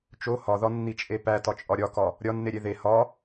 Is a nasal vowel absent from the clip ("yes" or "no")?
yes